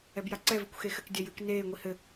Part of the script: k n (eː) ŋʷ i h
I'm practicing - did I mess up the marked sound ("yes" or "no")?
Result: no